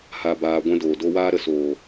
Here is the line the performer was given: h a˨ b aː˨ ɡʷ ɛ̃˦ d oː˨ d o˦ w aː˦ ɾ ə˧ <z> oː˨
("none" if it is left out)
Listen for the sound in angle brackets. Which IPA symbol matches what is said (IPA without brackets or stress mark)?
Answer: s